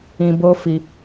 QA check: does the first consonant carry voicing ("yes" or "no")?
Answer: yes